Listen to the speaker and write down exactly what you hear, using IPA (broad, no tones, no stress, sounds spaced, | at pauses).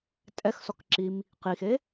tʼ ɛ x s ɔ k ǁ i m | q i x e